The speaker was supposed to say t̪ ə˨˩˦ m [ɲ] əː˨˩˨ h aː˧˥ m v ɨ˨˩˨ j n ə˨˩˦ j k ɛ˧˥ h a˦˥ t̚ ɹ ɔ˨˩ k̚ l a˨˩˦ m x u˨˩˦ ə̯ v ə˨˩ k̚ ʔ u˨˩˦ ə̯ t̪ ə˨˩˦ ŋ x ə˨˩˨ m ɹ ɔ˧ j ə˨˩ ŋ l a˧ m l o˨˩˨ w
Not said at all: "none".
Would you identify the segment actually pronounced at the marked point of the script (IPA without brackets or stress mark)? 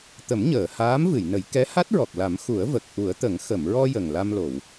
ɲ